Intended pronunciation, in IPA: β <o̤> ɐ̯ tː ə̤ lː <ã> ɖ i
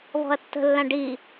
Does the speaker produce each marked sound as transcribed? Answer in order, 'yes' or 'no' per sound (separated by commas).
no, yes